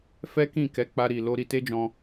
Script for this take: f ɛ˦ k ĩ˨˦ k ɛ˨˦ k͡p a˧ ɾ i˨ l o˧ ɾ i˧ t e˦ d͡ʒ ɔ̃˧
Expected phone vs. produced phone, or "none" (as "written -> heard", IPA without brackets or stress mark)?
ĩ˨˦ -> ĩ˦˨